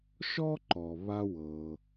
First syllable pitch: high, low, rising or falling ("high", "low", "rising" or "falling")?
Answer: high